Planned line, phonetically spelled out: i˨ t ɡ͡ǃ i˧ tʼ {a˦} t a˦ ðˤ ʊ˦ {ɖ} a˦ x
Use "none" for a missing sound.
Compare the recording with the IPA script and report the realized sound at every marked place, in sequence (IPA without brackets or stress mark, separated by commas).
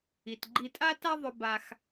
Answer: a˦, b